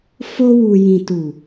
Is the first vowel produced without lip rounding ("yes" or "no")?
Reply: no